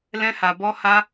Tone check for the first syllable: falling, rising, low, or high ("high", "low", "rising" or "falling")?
high